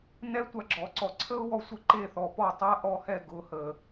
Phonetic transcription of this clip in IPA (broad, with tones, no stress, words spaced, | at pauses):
nɛ˦tʷa˧ɡ͡ǁɔ˨ǀɔ˨ ǀʰə˦ʊ̯wɔ˧sʷə˧ ǃe˦˨ θɔ˨pɔ˦˨ tˤa˦ ʔɔ˧hɛ˦˨ ɡʊ˨hə˨